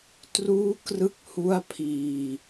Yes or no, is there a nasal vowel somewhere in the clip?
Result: no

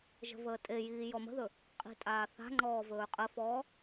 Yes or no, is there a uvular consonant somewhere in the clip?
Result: yes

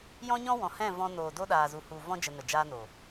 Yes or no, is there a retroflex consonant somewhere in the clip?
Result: no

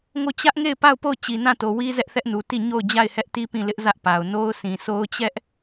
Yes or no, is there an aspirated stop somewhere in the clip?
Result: no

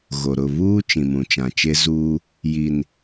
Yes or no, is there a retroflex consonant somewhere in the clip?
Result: no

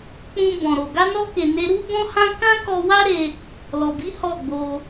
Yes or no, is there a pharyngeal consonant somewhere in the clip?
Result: no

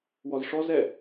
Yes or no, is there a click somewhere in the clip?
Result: no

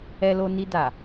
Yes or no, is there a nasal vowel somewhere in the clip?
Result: no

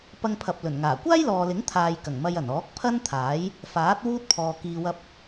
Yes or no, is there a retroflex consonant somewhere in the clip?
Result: no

